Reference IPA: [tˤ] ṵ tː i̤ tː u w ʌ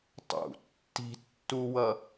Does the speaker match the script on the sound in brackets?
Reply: yes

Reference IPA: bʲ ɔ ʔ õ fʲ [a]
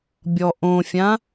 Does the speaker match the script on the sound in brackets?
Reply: no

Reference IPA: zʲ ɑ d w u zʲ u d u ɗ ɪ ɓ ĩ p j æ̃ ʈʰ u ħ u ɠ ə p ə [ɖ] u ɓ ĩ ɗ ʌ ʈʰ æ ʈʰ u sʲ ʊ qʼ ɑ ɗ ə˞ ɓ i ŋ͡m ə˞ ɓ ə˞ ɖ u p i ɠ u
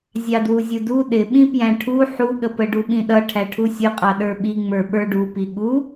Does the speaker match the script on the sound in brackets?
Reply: yes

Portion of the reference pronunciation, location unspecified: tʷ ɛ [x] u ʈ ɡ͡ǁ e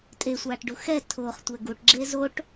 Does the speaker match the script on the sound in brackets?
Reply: no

